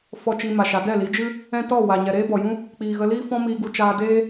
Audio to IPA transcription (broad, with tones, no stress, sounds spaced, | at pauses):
f ɔ˧ t͡ʃ i˧ m a˨ ʃ a˨˦ d ɛ˦˨ l i˨˦ d͡ʒ ɨ˦ | ɛ̃˦ t ɔ˦˨ w a˨ ɲ ɛ˨ ɾ eː˦ b ɔ˨ j ũ˦ | k͡p iː˨ ɣ ə˧ l iː˦ f ɔ̃˦ m iː˧ ɡ u˧ t͡ʃ aː˧ d eː˦